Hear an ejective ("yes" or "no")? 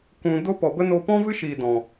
no